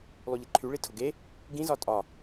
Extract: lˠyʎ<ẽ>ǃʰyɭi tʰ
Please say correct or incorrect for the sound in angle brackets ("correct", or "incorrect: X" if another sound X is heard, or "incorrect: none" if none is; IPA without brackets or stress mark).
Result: incorrect: e